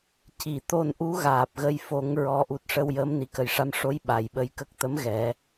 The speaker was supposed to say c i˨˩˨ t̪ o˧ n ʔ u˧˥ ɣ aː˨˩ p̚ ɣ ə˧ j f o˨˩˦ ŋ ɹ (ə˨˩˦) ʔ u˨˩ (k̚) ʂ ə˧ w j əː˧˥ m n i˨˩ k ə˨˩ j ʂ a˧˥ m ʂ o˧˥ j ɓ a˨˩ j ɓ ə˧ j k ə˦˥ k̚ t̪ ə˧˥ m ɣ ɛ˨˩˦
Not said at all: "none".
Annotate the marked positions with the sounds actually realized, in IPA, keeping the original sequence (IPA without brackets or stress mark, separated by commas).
ɔ˨˩˦, t̚